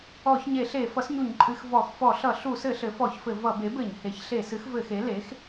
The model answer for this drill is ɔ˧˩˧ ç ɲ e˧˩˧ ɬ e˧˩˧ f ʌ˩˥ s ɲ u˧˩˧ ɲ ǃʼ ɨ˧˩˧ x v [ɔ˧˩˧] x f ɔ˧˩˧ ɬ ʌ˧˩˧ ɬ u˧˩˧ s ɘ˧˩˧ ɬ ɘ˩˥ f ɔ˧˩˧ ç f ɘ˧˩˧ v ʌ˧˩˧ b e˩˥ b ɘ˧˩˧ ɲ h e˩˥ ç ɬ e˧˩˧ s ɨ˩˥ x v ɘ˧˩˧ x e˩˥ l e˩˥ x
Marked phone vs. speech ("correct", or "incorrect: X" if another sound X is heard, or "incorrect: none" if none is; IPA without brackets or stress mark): correct